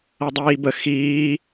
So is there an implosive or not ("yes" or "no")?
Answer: no